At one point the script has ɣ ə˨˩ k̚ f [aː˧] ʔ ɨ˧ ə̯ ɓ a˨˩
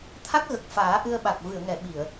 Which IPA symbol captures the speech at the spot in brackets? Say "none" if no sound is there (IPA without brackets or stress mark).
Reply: aː˨˩˦